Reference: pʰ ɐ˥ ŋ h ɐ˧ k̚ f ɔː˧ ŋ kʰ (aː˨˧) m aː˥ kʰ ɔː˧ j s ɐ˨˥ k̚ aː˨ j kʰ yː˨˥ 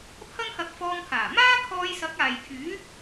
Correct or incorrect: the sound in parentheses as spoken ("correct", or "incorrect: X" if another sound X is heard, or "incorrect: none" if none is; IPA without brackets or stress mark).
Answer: incorrect: aː˨˩